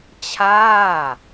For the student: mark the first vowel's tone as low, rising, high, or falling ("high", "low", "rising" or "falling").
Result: falling